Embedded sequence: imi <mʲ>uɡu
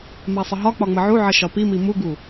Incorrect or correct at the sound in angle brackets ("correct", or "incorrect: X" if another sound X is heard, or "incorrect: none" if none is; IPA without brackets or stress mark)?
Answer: incorrect: m